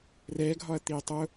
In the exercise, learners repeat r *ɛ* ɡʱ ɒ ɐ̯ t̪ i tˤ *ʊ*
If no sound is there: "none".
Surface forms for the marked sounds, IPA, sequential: ɛ, ʊ

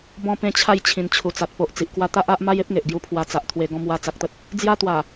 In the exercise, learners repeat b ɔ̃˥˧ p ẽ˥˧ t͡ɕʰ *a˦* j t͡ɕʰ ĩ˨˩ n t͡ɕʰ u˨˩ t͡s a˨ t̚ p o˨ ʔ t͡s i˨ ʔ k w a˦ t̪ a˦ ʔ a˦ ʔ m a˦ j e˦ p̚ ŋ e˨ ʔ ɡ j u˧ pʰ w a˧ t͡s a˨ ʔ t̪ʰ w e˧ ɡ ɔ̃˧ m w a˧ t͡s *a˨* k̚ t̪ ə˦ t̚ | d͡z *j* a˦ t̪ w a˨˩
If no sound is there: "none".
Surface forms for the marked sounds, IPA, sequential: a˥˧, a˨, j

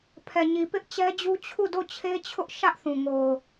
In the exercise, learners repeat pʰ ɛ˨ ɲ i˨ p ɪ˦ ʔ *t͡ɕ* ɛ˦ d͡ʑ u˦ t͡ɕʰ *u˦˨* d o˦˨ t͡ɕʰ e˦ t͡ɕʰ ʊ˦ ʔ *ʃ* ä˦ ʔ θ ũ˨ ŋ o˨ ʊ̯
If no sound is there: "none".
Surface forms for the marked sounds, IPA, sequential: t͡ɕ, u˦˨, ʃ

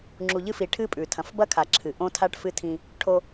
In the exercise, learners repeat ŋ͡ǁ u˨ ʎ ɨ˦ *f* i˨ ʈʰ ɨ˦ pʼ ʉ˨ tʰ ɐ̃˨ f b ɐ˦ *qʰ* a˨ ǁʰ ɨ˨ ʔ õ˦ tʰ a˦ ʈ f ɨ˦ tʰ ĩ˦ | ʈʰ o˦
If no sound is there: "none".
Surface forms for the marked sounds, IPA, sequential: f, kʰ

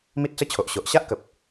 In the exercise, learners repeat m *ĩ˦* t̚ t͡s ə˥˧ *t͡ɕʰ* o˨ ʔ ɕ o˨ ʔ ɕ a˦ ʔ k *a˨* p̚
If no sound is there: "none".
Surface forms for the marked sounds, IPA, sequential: i˦, t͡ɕʰ, ə˨

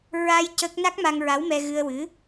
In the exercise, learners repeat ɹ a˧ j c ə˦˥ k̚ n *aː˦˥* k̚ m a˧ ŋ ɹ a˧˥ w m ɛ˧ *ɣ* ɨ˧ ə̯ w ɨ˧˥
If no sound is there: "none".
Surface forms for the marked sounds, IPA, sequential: a˦˥, ɣ

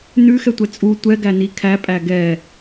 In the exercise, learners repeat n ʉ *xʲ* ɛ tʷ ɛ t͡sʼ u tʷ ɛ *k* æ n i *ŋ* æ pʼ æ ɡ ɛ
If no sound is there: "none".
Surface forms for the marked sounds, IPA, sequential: x, ɡ, kʰ

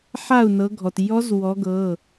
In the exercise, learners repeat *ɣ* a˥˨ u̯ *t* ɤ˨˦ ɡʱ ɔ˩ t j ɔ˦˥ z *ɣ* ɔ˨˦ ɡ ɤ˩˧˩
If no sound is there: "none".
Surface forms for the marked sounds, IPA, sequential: ħ, n, w

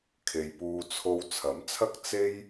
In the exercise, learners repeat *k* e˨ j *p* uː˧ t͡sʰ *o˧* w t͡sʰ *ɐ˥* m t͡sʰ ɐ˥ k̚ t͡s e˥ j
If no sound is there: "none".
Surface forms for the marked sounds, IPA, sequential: kʰ, p, o˧, ɐ˨˥

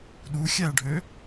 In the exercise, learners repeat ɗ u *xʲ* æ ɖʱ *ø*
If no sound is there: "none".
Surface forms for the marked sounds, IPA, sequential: xʲ, ø

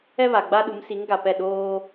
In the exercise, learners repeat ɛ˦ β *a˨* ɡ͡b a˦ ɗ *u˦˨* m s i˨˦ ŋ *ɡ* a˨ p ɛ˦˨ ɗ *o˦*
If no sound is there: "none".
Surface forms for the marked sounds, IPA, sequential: a˨, u˨˦, ɡ, oː˦

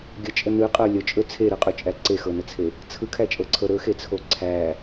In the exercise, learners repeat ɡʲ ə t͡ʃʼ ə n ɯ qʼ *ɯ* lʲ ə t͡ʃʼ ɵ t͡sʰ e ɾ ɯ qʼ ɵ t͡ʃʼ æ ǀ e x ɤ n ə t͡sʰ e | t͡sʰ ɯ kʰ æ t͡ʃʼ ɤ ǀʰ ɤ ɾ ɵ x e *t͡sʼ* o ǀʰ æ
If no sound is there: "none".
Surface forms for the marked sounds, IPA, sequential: ɤ, t͡sʰ

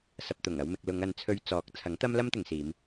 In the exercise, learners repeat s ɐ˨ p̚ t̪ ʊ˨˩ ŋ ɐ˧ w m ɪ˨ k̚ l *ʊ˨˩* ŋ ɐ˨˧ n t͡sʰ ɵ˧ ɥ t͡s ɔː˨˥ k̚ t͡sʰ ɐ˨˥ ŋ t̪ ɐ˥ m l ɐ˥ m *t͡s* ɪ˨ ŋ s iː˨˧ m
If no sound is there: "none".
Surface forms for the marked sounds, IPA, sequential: ʊ˨˧, t̪

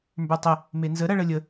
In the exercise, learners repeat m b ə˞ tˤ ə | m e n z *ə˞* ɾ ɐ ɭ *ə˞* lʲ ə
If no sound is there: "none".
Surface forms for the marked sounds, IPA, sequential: ə, ə

